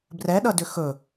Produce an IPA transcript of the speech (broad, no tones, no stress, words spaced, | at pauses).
brɛɗʌdʏ xɵ